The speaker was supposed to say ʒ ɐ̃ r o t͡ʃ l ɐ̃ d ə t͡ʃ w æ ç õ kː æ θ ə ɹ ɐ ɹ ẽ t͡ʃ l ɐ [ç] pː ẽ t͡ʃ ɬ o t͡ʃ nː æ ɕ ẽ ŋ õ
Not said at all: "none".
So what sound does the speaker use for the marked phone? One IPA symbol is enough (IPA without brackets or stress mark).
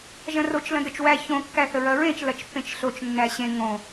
t͡ʃ